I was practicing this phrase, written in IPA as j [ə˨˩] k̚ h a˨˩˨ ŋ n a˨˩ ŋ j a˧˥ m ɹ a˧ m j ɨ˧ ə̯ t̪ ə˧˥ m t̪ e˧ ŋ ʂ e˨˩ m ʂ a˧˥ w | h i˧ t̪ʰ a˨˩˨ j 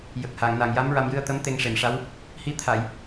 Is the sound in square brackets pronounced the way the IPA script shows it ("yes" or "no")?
yes